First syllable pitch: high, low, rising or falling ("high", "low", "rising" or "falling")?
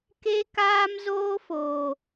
high